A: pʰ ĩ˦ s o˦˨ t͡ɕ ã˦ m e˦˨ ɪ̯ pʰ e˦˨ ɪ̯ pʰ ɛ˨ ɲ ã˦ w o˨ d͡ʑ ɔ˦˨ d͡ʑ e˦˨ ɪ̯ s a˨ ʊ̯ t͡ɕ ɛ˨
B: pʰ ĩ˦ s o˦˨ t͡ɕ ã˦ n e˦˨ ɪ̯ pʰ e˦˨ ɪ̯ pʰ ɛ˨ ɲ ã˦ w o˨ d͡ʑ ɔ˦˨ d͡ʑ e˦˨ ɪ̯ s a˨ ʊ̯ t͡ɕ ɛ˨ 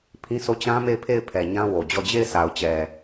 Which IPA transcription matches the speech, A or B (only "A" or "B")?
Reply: A